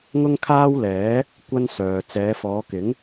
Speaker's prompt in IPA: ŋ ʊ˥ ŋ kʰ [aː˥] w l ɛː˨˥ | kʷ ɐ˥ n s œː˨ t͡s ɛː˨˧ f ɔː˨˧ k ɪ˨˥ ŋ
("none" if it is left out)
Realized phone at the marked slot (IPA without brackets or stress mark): aː˥